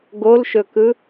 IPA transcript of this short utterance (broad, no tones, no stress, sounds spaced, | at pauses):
ɡ o l ʃ ɵ k ɯ